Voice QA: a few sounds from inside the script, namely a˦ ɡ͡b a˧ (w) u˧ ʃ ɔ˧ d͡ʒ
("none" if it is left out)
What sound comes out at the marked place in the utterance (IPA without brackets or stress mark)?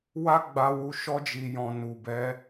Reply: w